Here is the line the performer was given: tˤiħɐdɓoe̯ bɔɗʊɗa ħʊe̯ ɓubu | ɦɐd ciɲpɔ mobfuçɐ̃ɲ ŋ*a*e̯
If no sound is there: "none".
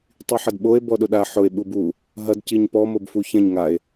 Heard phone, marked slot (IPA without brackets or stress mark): a